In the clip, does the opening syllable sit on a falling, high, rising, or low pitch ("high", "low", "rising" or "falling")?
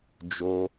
high